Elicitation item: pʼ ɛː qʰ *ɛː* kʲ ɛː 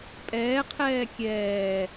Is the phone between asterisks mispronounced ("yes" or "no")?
no